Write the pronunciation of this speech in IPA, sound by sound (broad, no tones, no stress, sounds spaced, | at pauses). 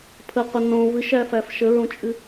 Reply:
pʰ ə qʷ ə n õ v ɨ ʃ æ f æ f ʃ ə ɹ õ t͡ʃʼ ɨ